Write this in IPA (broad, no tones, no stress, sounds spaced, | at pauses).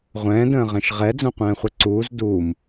ʁʷ ɛ̃ː d ə̃ː ʁ ɛ̃ ʃ ʁ ɛ d͡z õ qʷ ɛ̃ː χʷ ɛ ǀ uː z d uː m